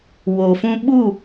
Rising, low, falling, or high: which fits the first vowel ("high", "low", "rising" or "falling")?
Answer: low